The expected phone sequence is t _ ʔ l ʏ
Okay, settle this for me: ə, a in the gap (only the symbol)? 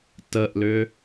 ə